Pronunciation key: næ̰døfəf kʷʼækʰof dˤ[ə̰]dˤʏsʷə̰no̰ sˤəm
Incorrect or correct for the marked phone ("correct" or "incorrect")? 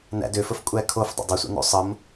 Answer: correct